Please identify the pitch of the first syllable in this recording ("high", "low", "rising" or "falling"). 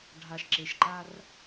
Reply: low